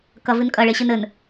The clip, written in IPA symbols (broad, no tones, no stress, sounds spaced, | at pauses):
k ɐ v ɨ n kʼ ɐ ɭ e ɕ ɨ n ɘ n